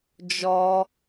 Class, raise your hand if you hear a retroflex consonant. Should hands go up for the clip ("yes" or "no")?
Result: no